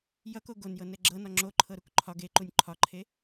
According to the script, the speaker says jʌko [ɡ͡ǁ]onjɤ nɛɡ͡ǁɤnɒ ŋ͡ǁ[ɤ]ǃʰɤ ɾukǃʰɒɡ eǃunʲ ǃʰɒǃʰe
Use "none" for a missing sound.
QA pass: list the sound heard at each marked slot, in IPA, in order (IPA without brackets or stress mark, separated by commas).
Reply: ɡ, o